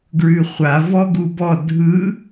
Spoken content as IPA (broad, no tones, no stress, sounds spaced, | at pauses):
ɡ ɹ ʉ χʷ a v ɔ ɡ u b ɔ dʱ ɯ